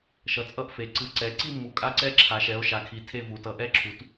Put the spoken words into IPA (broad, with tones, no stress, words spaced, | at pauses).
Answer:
ʃʌ˨˦t͡sʼʌ˥˧ʔfe˨˦ ǀɯ˨˦ ǀɛ˨˦ ǀi˥˧mːu˨˦ kʼa˥˧ǀɛ˥˧ ǁʰa˨˦ʃɛ˨˦o̯ʃa˨˦kʰi˨˦ tʰe˥˧vu˨˦ tʌ˨˦ ʔɛ˥˧ǁʰu˨˦t